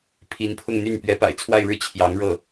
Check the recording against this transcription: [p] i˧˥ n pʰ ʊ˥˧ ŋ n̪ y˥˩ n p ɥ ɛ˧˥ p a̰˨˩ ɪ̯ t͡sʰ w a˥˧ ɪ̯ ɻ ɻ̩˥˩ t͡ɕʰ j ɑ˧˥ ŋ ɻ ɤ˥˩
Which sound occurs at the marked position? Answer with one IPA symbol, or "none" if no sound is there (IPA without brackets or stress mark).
pʰ